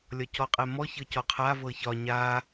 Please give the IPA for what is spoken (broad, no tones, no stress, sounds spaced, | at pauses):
lʲ ɒ c ɔ qʼ ɛ m ɔ ç ɤ c ɔ qʰ a v ɤ ç ɒ ɲ a